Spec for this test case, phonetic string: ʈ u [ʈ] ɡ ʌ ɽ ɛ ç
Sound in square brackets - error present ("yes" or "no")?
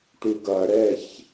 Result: yes